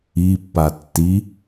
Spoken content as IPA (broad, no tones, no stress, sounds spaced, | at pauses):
i pː a tː i